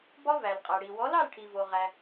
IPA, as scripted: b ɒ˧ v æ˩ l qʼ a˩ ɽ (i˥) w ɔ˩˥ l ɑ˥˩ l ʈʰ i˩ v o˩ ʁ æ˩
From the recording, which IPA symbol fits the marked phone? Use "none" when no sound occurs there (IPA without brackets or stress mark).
i˩